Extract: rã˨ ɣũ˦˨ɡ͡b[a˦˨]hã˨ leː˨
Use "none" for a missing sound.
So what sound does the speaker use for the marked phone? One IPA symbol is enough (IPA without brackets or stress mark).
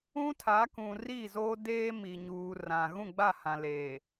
a˦˨